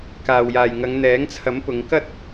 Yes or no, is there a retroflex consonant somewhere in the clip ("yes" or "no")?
no